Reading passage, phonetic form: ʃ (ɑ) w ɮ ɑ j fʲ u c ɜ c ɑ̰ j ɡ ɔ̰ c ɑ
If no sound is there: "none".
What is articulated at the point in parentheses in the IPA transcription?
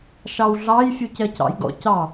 ɑ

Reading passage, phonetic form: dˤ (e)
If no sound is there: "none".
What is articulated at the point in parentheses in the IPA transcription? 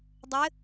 ɘ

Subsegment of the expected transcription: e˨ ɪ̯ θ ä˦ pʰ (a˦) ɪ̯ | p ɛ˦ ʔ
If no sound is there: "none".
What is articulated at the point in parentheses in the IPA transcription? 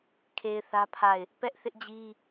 a˦˨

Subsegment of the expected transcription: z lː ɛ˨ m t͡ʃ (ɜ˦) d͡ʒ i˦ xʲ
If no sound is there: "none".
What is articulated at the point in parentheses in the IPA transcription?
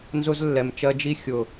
ɜ˦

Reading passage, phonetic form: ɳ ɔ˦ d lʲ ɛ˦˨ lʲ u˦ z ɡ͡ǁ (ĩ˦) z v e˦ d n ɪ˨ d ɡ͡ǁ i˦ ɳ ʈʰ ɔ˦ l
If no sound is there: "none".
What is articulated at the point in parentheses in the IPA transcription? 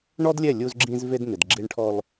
ĩ˦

